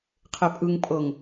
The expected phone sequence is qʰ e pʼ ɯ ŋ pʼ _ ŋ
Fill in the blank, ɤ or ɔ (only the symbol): ɤ